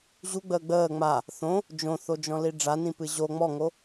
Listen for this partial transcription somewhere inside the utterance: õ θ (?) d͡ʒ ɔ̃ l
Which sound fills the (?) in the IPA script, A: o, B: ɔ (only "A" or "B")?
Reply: A